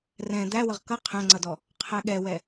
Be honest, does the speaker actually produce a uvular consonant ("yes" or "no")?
yes